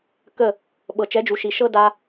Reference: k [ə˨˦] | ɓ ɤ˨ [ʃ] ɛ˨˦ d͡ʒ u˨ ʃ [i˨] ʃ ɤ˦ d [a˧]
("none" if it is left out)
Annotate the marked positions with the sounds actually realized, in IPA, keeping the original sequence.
ə˦˨, t͡ʃ, i˨, a˧

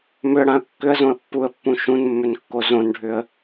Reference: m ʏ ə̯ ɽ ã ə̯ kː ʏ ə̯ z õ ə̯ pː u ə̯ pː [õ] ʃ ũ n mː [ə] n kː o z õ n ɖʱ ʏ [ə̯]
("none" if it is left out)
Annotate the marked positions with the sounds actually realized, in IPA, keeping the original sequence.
ũ, ʏ, ə̯

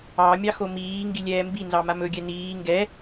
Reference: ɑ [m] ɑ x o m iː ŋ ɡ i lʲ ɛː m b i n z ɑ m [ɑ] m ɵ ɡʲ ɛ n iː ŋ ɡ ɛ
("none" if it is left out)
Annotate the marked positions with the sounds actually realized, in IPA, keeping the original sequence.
mʲ, a

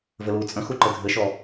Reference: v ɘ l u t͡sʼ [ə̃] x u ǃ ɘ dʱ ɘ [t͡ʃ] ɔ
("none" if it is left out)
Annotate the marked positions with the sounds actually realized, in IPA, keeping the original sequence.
ə̃, ʃ

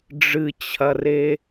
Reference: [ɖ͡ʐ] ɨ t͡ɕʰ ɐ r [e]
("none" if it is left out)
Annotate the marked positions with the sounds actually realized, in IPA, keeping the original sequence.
ɖ͡ʐ, e

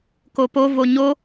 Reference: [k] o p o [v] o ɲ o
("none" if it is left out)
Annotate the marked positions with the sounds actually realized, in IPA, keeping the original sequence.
k, v

